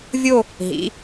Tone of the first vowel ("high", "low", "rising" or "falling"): falling